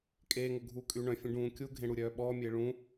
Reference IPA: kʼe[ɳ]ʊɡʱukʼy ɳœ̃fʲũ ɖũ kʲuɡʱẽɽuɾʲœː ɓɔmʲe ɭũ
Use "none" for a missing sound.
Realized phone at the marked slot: ŋ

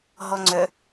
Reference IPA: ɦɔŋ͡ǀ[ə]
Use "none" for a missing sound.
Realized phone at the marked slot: œ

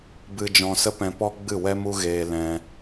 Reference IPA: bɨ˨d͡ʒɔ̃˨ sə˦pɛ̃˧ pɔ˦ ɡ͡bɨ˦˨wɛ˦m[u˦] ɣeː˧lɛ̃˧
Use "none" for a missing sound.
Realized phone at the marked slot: u˦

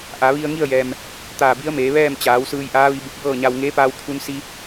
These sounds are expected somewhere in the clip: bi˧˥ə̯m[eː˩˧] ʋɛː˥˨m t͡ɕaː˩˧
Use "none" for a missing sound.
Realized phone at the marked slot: eː˩˧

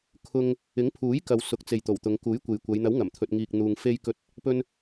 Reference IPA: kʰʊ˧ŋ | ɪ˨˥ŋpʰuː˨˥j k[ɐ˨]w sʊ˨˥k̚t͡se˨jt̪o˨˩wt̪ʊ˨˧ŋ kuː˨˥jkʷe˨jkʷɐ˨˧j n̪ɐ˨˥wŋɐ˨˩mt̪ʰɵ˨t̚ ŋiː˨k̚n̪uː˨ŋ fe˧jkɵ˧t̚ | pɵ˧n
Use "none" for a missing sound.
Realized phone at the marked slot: ɐ˨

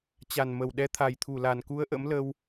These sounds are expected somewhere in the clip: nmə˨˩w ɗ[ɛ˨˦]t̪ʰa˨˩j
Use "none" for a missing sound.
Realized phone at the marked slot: ɛ˨˦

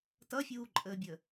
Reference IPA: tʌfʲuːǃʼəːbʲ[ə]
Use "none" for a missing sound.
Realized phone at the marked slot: ə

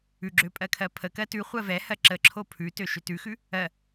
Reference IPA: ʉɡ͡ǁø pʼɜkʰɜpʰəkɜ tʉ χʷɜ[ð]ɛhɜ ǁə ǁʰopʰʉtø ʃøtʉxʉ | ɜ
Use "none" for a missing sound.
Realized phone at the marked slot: v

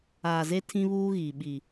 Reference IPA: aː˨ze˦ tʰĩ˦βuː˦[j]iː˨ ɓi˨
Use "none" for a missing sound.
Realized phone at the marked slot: ɣ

